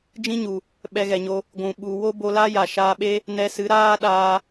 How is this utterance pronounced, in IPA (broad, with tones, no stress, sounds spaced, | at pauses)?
d͡ʒ ĩ˦ ɲ u˨ | ɓ ɛ˧ ɣ ɛ˨ ɲ o˧ | ɡʷ ũ˨ ɓ u˨ w o˦ b o˧ l a˦ j a˨ ʃ aː˧ ɓ e˦ | n ɛ˧ s ɨ˨˦ ɾ aː˦ ɗ aː˧